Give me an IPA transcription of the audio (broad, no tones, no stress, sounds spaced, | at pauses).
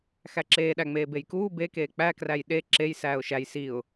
x æ ǁ eː ɗ æ ŋ͡m eː b e j k uː b e k eː k͡p æ k r æ j ɗ e ǁ e j s æː ʊ̯ ʃ æ j s i ʊ̯